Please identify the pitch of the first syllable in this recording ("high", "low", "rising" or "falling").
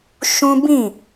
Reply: high